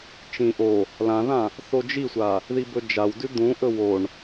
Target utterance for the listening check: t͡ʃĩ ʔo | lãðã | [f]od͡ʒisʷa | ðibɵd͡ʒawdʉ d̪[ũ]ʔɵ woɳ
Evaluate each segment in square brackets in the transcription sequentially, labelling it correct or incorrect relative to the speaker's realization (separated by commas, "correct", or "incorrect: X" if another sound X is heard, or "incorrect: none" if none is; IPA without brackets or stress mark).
incorrect: θ, correct